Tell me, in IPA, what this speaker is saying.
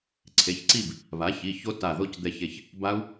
ǀʰ e˩˧˩ ç ǀ i˥˨ b | β a˩˥ ç i˩˧˩ ç o˦˥ t a˧˩ ð o˥˨ c d̪ ɛ˧ ç e˧˩ ç | b a˦˥ u̯

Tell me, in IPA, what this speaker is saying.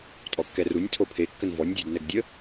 tʼ ɔ kː ɛ r u nʲ tʰ o pʰ e kː ə n v ɔ nʲ dʲ ɔ d n ɛ ɡ dʲ ə

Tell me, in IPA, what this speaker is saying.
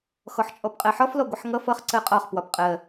x ɔ ħ t͡ʃʼ ɔ p qʼ ɜ ħ ɒ f l ɔ ɡʷ ʌ ħ ŋ ʌ f ʌ χ ǀ ɜ qʼ ɒ χ p w ɒ p qʼ ɜ

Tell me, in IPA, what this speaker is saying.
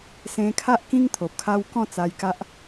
s ẽ˧ kʰ a˦ ʔ k ĩ˦ ŋ t̪ʰ o˨ p̚ kʰ a˦ w k ɔ̃˥˧ t͡s a˧ j k a˦ ʔ

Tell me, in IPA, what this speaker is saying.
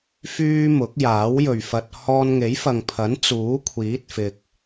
f yː˥ m ʊ˨˥ k̚ j aː˨˥ w j ɵ˨ ɥ f ɐ˧ t̚ h ɔː˧ n ŋ e˨˥ j f ɐ˨ ŋ pʰ ɐ˨˥ n t͡s uː˨˥ kʷʰ iː˨˥ t̚ f ɪ˨ k̚

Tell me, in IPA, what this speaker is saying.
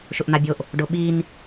ʃ ʊ ʔ n̪ a bʲ o ʔ | ɖ ʊ ɓ i n

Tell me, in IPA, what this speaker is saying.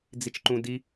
d͡z i t͡ʃ ǃ ũ d i

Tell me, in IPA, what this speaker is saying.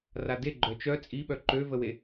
r a d e ɡ͡ǃ œ t͡ʃ œ t͡sʼ i ɓ œ ǃ ø v ə w e

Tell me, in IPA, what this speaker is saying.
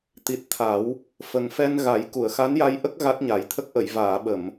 t̪ i˨˩ t̚ t̪ʰ a˨˩˦ w | f ə˨˩ ŋ f ɛ˧ n ɣ a˨˩˦ j k u˨˩˨ ə̯ x a˧˥ n j a˧ j ʔ ə˦˥ k̚ ɣ a˦˥ t̚ ɲ a˨˩˦ j t̪ʰ ə˦˥ k̚ ʔ ə˨˩˨ j v aː˨˩˨ ɓ ə˨˩˨ m

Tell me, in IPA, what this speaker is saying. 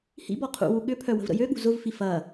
h ḭ b ɔ qʰ ṵ w u ɠ ʏ pʰ œ w ə̤ v ɾ ə̰ j ø ɠ ṳ z ʊ v f i f ɐ

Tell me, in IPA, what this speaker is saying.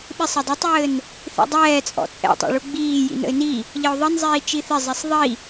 ɓ ɪ sˤ ɘ dˤ ə tˤ ɘː n | θ ḭ dˤ ɛː t͡sʼ ɔ̰ t͡sʼ ɛ̰ tˤ ɛ̰ ɭ u ɡ͡b iː j ḭ n ə̰ ɪ̯ n i | ʎ ə ʊ̯ ðˤ ə n zˤ iː t͡ʃ i θ ɪ zˤ ɛ sˤ ðˤ i

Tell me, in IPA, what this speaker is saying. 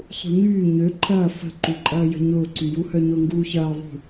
sˤ ṳ ɲ yː ɲ ø ǃʰ ɐː f ə̤ ǃ u ǃʼ ɐː j ə̤ ɲ ʊː ǀ y j u h œ ɲ ʊ ŋ ɡ uː ç ɐː ðˤ ṳ

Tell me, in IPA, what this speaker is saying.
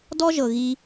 d ɔ˦ ʒ ɤ˨ ɣ i˦

